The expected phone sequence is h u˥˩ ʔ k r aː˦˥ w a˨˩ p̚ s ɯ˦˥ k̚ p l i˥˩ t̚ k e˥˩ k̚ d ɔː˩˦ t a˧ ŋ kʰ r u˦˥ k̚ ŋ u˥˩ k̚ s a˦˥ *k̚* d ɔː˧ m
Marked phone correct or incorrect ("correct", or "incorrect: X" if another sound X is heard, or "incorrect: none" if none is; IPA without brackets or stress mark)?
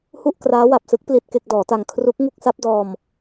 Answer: incorrect: p̚